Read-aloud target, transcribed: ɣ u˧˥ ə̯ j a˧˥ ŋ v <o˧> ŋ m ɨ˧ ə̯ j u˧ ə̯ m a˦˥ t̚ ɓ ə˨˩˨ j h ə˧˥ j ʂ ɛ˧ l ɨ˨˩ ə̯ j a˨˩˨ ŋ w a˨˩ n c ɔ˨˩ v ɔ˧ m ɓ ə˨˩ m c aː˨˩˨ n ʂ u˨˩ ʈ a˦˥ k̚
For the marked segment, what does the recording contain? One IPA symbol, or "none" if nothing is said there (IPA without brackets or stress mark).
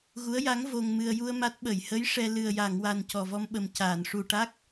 o˧